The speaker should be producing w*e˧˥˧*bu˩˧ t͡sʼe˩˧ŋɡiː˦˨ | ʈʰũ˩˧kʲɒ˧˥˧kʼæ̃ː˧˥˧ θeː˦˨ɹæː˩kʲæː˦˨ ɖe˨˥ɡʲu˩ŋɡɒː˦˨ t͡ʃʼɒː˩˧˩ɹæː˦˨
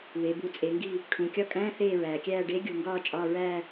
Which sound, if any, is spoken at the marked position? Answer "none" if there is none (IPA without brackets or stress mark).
e˩˧